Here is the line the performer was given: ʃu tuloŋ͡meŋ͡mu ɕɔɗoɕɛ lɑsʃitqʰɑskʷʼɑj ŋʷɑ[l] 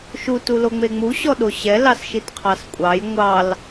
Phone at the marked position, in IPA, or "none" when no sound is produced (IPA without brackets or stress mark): l